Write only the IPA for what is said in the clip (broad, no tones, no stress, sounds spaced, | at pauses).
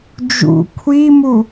d͡ʒ ṵ kʷʰ i m u